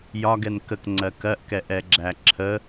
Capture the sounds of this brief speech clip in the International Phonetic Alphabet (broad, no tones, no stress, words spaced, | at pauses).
jɒɡɛn kəkŋ͡ǀɜ kɜʔkɛʔɛɡ͡ǁæ ǁʰə